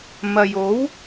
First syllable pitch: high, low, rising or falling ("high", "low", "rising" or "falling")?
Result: low